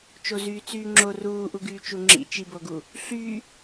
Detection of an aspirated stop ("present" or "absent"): absent